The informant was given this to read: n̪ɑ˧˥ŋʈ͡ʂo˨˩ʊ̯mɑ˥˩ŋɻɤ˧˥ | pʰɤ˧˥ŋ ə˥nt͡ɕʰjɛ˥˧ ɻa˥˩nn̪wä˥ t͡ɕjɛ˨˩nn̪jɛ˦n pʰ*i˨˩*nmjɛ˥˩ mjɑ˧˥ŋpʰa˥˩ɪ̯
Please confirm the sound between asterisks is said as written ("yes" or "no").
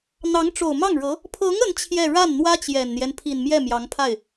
yes